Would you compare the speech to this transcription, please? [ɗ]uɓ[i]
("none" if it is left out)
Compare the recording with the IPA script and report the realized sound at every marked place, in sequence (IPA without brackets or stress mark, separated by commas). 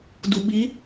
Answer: d, i